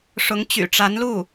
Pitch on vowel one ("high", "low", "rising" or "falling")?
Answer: rising